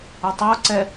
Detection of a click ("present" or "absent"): present